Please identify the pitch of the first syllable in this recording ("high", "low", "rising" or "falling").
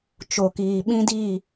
low